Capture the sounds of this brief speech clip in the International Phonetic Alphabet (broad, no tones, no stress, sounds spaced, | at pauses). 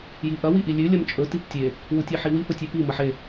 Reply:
j i ʔ ɐ w i ʔ i lʲ ʉ lʲ ɐ m t͡ʃʼ ɵ t i p tʲ e | w u tʲ e ħ i w i p ɵ tʲ ʉ p i m ɐ ħ e